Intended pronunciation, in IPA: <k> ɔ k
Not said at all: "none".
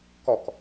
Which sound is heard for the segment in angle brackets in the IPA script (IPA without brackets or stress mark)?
k